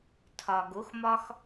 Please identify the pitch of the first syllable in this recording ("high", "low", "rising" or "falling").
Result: low